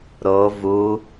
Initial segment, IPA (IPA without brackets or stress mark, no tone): ɾ